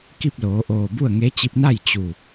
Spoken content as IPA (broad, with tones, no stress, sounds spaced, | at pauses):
k i˥˨ p̚ l oː˩˧ ʔ oː˧˩ b u˥˨ ə̯ ŋ e˧˥ t͡ɕ i˧ p̚ n a˥˨ j t͡ɕ u˧˩